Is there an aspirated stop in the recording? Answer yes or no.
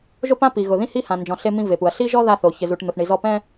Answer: no